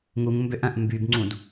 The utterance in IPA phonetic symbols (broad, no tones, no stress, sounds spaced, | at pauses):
ŋ u ŋ m b ø ʔ ɐ̃ ʔ m b y b ŋ͡ǀ ũ d